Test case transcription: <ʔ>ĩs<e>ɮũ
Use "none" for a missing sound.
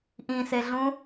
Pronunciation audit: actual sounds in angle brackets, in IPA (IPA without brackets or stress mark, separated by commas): ʔ, e